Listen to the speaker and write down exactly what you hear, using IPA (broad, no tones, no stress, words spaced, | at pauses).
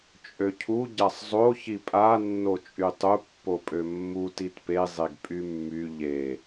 t͡ʃʼøcʰu ɟasˤzˤo çipʼa nːot͡ʃʼytˤu pːopʼømːu titpe zˤeɡpʼymːy ʎe